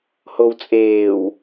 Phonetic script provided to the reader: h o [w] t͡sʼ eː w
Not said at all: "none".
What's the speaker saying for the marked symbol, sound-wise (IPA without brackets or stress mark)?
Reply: w